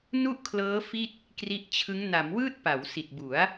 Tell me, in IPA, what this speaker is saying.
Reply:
nu˥˩ʔkʰlɤː˦˥ fi˥˩t̚ | kri˦˥ʔt͡ɕʰɯ˦˥ŋ na˩˦mwɯː˥˩t̚ pa˩˦wsi˨˩t̚bu˩˦a̯

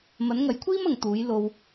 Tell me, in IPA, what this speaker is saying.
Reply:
mɐ˨˥nŋɐ˨˥jkʷʰiː˥m ɐ˨ŋt̪uː˨˥j lo˧w

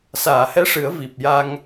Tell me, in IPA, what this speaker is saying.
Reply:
saː˨˩˨hɛ˧˥ʂɨ˨˩˦ə̯ vi˨˩p̚ja˧ŋ

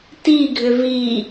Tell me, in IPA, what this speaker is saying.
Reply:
tiɡʱʏ vi

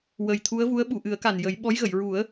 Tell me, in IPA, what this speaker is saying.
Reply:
wə˨˩jt̪ʰu˧˥ə̯vu˧˥ə̯ ɓu˨˩˨ʔɨ˨˩˦ə̯ka˨˩n jə˨˩˦jɓɔ˧˥jɣə˨˩˨j ɹu˨˩˦ə̯

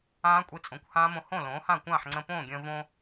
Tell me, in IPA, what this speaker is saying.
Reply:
ãː˦˥kʷʼi˧ t͡sʼõ˩˥kʷhãː˦˥mõ˧ hõ˥˩lõː˩˥hã˥˩ kʷãː˥˩ħŋ͡ǀə̃˧põː˥˩ɡʲə̃ː˧ võ˧

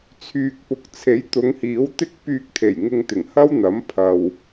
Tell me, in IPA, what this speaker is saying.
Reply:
t͡sʰyː˨k̚pʊ˨˥k̚t͡sʰe˨˥j t̪ʊ˨˧ŋhiː˨˥wt̪ɪ˥k̚ pyː˧k̚t̪ʰe˨˩j ŋɪ˧ŋt̪ɪ˨˩ŋhɐ˥wn̪ɐ˨˥m pʰɐ˨w

